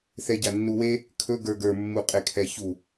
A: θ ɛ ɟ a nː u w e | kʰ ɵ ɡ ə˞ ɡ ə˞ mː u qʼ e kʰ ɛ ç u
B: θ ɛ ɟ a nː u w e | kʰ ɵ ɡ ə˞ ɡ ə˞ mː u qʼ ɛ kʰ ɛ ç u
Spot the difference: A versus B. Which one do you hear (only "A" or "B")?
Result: A